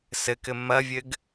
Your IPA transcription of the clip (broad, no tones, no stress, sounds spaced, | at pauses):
s ɘ k ɘ m ɐ vʲ ɘ ɡ